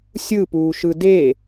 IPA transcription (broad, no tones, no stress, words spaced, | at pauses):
sʲɯpuːʃ ɯde